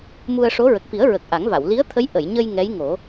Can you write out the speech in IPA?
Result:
m u˧ ə̯ ʂ o˧˥ ɹ ə˨˩ k̚ f i˨˩˦ ə̯ ɹ ə˨˩ k̚ ʔ a˨˩˦ ŋ v a˨˩˨ w l i˧˥ ə̯ t̪ʰ ə˧˥ j ʔ ə˨˩˨ j ɲ ə˧ j ŋ ɛ˧˥ j ŋ o˨˩˦

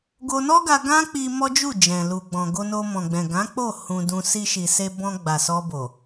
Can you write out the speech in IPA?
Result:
ɡ o˧ n ɔ˦ ɡ a˧ ɡ ã˦ k͡p i˧ m ɔ˦ d͡ʒ u˦˨ d͡ʒ ɛ̃˨ l u˨ ɡ͡b ɔ̃˨ ɡ o˧ n o˧ m ɔ̃˨ ɡ͡b ɛ̃˨ ɡ ã˨˦ k͡p o˦˨ h ũ˧ d ũ˧ s i˧ ʃ i˨ s e˧ b ɔ̃˧ ɡ͡b a˨ s ɔ˧ b o˨

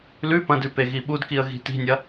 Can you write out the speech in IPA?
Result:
l ʉ p ɐ̃ d ʉ p e ɣ i ɓ u d k i ə̯ ɣ i̤ t i̤ nʲ ɐ

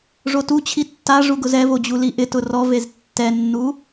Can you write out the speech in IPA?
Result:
ʐ o t u t͡ɕʰ i tː a ʐ u ɡ ʊ z ɛ v o d͡ʑ u l i ʔ ɪ t ʊ r ɔ v e z tː ɛ nː u

